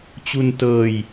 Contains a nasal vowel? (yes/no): no